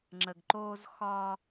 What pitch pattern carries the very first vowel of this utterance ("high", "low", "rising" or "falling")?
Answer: low